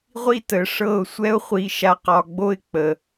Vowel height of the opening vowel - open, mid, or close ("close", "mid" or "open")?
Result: close